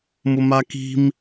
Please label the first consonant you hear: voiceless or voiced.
voiced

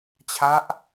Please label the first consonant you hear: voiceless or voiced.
voiceless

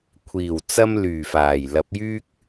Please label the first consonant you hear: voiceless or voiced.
voiceless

